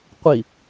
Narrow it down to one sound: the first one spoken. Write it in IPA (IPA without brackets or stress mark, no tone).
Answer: qʷ